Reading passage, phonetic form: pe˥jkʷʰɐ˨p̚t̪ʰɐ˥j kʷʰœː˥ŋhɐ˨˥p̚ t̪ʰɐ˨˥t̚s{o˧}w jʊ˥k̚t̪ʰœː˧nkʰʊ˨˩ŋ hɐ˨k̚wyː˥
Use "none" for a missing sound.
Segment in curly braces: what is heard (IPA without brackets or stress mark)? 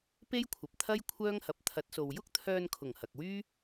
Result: o˨